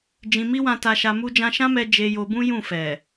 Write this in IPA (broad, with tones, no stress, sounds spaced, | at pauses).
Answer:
d͡ʒ ĩ˧ m i˦ w ã˧ t a˧ ʃ a˧ m u˦ d͡ʒ ã˧ ʃ ã˦ m ɛ˧ d͡ʒ e˧ j o˧ b ũ˦ j ũ˦˨ f ɛ˨